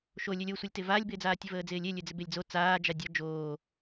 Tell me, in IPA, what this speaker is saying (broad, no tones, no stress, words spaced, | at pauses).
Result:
ʃolʲølʲ osʷəlʲtɪ vaːlʲbɪːd͡zaː tʲəvəːd͡zɪːlʲe lʲød͡zɪbelʲd͡zo t͡saː d͡ʒadʲɒ d͡ʒoː